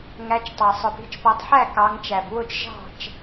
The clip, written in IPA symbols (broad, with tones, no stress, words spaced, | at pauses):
ŋæ˨˦t͡ʃtˤɑ˨sˤʊ˨ pi̤˨˦t͡ʃpɔ˨˦tˤħæ˥˨ kɑ˨˦ŋt͡ʃæ˨b wʊ˥˨t͡ʃʒɑ̤˥˨t͡ʃ